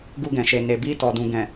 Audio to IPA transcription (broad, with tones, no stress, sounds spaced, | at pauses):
ɡ u˧ ɡ ɛ̃˨ ʃ e˨ n e˨ b i˧ t ɔ˨ d ũ˨ ɡ ɛ̃˨